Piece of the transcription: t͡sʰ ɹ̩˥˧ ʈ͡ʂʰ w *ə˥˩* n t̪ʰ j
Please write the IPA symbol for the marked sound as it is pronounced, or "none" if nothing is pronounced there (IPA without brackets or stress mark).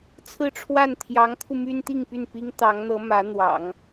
a˥˩